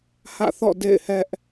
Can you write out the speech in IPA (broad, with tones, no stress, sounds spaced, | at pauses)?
h ä̰˦˨ θ ɔ̰˦˨ d ḛ˦˨ ɪ̯ h ɛ˦ ʔ